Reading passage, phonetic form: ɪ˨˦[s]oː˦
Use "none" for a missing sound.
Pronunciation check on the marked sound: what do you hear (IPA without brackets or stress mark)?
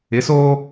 s